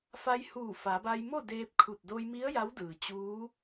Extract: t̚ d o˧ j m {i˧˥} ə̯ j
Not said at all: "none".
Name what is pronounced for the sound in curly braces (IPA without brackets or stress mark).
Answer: i˧˥